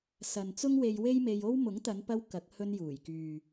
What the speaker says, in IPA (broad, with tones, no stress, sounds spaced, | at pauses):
s ɐ˨ n t͡s ʊ˥ ŋ w e˧ j w e˥ j m e˧ j o˥ w m ʊ˨˥ ŋ t̪ ɐ˨˧ n p ɐ˧ w k ɐ˨˥ k̚ h ɵ˧ n j uː˨˩ j k yː˨